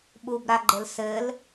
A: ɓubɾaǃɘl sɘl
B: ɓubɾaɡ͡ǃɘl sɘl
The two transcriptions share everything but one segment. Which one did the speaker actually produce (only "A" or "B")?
B